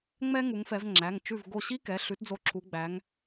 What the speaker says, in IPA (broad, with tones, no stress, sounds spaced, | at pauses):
ŋ͡m ɛ˥ ŋ u˨˦ ŋ f ɛ˨˦ v ŋ͡ǁ æ˩˧˩ ŋ t͡ʃ ʉ˧˩ v ɡ o˧˩ ɕ i˥ k ɛ˩˧˩ ɬ ʉ˨˦ t d͡z o˧˩ ǁʰ u˨˦ ɡ͡b æ˨˦ ŋ